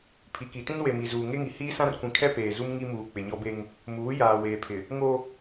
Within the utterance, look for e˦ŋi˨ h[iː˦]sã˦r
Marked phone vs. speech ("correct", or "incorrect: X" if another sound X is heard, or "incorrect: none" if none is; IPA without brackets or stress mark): correct